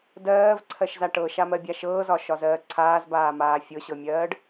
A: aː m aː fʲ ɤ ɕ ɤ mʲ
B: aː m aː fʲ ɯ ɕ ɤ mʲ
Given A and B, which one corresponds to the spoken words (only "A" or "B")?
A